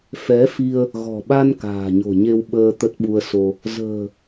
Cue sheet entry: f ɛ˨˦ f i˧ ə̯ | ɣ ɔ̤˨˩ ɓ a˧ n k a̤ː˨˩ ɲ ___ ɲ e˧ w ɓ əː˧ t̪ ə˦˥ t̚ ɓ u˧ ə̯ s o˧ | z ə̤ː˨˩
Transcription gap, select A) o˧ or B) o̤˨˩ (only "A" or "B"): B